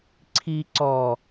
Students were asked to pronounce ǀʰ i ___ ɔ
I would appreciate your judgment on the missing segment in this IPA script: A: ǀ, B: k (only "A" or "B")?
A